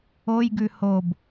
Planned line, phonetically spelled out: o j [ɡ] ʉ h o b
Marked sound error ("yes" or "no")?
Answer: no